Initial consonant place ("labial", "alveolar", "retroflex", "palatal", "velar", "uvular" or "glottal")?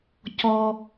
palatal